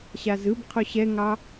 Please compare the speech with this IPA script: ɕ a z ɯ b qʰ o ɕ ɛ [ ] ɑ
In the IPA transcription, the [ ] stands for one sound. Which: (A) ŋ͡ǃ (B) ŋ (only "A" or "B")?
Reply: B